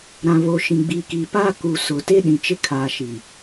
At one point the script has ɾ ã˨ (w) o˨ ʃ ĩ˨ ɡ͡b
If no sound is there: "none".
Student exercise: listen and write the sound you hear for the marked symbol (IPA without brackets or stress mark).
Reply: β